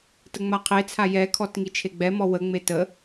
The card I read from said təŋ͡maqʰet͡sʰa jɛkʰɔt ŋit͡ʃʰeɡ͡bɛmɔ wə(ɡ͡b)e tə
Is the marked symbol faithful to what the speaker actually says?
no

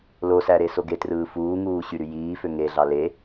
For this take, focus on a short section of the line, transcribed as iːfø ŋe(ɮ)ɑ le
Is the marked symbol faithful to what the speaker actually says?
yes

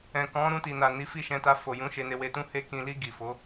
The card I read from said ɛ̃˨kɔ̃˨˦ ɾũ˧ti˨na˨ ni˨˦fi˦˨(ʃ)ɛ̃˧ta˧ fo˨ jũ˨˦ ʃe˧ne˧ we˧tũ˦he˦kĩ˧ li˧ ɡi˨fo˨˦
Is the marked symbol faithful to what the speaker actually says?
yes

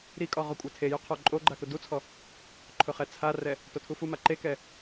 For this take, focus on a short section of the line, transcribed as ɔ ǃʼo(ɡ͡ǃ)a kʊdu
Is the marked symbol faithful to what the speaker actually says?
yes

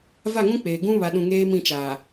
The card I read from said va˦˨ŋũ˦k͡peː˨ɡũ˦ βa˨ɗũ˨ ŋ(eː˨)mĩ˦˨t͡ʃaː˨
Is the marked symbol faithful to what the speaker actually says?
no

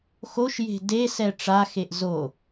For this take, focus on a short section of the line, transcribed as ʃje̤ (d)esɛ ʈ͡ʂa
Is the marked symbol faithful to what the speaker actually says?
yes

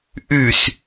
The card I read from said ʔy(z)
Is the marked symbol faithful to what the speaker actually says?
no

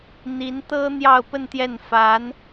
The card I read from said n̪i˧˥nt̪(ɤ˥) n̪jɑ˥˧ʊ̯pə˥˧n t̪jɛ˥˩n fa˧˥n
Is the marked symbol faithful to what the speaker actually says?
yes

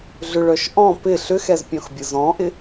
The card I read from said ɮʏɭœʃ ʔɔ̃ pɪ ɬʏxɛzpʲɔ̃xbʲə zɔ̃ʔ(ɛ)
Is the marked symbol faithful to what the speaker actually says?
no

